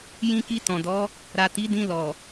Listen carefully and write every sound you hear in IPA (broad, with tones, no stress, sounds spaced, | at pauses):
j ĩ˧ k i˧ t ɔ̃˨ d ɔ˨˦ | ɾ a˨ t i˨˦ d ĩ˧ l ɔ˨